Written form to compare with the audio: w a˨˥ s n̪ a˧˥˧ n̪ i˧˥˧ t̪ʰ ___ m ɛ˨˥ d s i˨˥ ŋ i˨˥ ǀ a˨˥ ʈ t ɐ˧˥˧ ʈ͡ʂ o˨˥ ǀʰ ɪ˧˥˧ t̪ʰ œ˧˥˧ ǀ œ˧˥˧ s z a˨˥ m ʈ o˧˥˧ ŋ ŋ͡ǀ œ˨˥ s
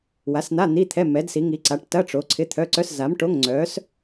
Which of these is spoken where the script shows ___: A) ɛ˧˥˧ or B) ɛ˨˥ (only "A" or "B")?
A